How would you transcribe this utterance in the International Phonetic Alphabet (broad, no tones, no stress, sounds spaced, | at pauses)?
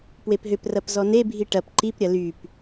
p w e p ɦ ʏ p r ɐ p z ɔ n e bʱ i ʈ ɐ p ǃ i p ɾʲ ɐ l y p